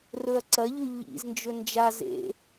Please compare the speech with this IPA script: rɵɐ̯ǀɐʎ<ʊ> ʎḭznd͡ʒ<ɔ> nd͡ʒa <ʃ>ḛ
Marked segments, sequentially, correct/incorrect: incorrect, incorrect, incorrect

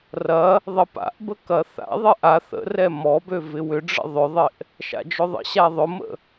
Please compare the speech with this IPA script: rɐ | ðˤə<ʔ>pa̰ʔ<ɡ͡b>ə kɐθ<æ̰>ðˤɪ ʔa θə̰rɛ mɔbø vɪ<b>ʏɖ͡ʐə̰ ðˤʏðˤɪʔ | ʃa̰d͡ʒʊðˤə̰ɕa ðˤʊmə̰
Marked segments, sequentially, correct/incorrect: incorrect, incorrect, incorrect, incorrect

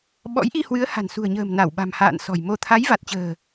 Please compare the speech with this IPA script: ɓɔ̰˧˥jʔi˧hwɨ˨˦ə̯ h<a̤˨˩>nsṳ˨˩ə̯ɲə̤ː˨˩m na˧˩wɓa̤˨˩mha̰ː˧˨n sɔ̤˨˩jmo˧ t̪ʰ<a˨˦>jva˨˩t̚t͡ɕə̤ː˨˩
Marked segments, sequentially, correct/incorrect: correct, correct

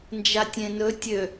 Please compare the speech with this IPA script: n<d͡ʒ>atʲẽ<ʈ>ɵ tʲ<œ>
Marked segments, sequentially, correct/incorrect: correct, incorrect, incorrect

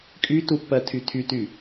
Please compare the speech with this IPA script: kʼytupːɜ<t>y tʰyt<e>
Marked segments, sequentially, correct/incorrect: incorrect, incorrect

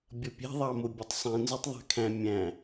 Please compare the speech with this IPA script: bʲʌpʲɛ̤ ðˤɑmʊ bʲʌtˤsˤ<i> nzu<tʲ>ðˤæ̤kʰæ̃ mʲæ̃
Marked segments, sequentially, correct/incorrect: incorrect, incorrect

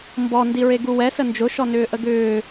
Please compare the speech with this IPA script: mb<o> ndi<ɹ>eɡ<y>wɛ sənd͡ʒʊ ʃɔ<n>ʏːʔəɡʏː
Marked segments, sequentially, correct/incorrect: incorrect, correct, incorrect, correct

